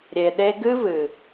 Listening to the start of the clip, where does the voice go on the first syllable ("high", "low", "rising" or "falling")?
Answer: low